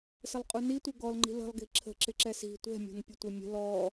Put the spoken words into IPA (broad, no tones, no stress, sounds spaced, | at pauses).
s ə lˠ qʼ u n i tʷ ɪ ɡ ɔ l ŋ͡ǃ i̤ l ə̤ lˠ ɡ i̤ ǁʰ ə̤ ǁ ɪ ǁ ɛ s i̤ tʷ ɛ̤ mʲ ɔ̤ n pʲ ʊ tʷ ɪ mʲ ə̤ l ɔ